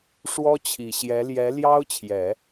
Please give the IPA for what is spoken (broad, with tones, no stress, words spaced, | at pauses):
ʂwɔ˥t͡ɕʰi˨˩ɕjɛ˧˥ ljɛ˧˥ljɑ˥ʊ̯t͡ɕʰjɛ˨˩˦